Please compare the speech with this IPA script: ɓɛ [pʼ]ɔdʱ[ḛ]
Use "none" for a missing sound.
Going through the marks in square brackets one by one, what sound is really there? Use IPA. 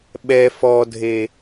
f, e

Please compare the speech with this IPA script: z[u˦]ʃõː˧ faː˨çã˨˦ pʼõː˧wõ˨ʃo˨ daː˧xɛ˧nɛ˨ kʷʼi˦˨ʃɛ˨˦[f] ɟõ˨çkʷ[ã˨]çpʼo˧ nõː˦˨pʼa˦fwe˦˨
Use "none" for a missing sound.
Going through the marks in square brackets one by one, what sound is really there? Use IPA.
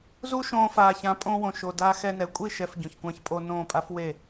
u˦, f, ã˧

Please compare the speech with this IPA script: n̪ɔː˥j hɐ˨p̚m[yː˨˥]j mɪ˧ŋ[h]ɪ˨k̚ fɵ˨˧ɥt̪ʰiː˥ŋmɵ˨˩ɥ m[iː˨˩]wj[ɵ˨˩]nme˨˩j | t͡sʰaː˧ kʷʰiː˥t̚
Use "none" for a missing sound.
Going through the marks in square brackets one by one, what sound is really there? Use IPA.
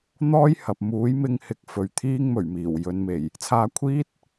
uː˨˥, h, iː˨˩, ɵ˨˧

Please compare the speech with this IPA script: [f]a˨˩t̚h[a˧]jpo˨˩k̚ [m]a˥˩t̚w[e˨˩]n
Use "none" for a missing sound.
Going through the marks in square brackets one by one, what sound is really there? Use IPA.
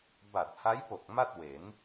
b, a˦˥, m, e˩˦

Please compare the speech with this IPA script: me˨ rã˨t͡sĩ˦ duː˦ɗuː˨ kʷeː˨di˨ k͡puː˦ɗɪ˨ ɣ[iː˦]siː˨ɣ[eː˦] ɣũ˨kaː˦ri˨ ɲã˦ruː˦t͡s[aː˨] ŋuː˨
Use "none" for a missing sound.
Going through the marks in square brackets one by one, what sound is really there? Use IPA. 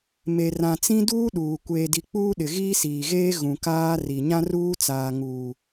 iː˦, eː˦, aː˨

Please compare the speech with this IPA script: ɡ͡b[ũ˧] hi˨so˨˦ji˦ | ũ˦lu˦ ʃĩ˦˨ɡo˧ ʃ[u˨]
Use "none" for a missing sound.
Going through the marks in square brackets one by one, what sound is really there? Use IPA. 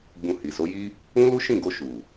ũ˧, u˨

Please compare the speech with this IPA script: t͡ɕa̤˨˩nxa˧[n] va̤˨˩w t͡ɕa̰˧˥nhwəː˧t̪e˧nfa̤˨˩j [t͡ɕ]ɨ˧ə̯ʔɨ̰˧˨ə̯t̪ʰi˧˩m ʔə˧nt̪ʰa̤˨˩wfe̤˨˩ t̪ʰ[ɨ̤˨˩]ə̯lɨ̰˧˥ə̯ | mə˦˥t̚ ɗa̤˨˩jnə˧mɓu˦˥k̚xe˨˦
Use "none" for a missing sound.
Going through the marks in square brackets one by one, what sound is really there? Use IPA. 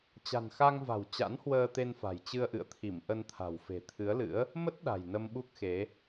ŋ, t͡ɕ, ɨ˨˦

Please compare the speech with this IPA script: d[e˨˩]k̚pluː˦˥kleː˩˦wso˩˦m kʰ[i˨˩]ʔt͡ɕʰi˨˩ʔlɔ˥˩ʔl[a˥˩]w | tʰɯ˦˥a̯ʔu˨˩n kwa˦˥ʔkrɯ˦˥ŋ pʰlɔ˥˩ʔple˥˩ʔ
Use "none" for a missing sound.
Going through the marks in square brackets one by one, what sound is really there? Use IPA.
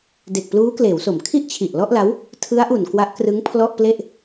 e˨˩, i˥˩, a˦˥

